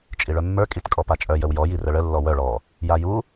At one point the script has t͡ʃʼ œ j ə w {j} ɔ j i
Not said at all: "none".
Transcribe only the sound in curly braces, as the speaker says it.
j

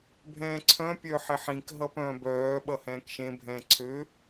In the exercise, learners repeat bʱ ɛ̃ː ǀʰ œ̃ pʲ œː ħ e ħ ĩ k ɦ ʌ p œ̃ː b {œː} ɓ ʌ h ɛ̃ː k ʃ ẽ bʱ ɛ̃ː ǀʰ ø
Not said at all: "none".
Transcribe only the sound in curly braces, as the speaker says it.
œː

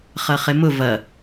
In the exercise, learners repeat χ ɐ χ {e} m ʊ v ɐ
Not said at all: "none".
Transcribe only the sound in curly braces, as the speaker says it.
e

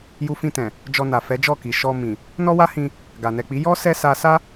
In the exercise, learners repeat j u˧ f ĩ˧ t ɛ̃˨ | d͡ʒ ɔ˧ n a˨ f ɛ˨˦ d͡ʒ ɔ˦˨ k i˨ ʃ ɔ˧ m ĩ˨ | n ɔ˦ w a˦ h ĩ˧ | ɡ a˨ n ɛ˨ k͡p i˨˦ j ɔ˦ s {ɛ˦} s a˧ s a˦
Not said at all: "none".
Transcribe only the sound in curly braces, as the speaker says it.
ɛ˦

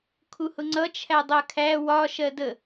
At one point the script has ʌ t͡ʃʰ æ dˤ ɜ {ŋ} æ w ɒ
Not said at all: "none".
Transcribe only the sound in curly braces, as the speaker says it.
kʰ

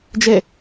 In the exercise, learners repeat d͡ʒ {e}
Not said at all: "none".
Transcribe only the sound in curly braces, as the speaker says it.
e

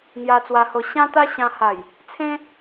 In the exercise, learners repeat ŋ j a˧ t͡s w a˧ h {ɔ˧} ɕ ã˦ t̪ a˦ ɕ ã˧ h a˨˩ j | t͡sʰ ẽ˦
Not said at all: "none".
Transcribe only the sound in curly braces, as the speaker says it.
o˧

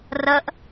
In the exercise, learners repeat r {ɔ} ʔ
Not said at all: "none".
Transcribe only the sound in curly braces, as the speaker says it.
ə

